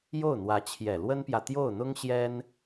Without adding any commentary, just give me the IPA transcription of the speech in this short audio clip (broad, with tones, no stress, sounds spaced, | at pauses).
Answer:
j o˥˩ ʊ̯ n̪ w ä˧˥ t͡ɕʰ j ɛ˨˩ l w ə˥ n p j ä˨ t̪ j o˥˩ ʊ̯ n̪ ʊ˥ ŋ ɕ j ɛ˥ n